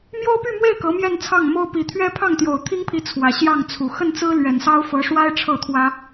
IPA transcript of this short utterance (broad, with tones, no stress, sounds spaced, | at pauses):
m j o˥ ʊ̯ p y˥˧ m w e˥˩ ɪ̯ k ɤ˧˥ m j ɛ˥˧ n t͡sʰ ɑ˥˩ ŋ m o˥ ʊ̯ p i˨˩ t̪ʰ ɥ ɛ˥ pʰ ɑ˥˩ ŋ t̪ j o˨˩ ʊ̯ t̪ʰ i˥ ŋ pʰ i˧˥ t͡sʰ w ä˨˩ ɕ j ɑ˥˩ ŋ t͡sʰ u˨˩ x ə˥˩ n t͡s ɹ̩˥ l ɥ ɛ˨˩ n s ɑ˥ ʊ̯ f ɤ˧˥ ʂ w a˥ ɪ̯ ʈ͡ʂʰ ɤ˥˩ t̪ʰ w ä˥